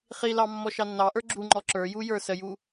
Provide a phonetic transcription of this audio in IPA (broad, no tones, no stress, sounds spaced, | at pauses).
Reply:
χ i l ɑ mː ɔ ʃ ɑ nː ɑ ʔ ə˞ ɡ͡ǁ u ŋ͡ǃ ɔ ǁ ə˞ j u j ə˞ s ə j u